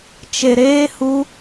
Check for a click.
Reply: absent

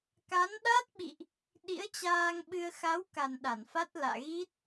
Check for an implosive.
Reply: present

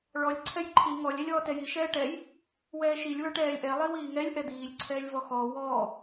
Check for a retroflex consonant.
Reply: present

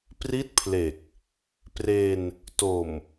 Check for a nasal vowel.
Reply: absent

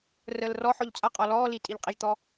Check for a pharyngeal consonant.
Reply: present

